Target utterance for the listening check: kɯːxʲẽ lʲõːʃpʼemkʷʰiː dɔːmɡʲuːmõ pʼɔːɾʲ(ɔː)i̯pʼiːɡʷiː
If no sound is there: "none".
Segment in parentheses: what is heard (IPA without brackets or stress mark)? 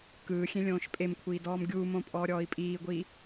ɔː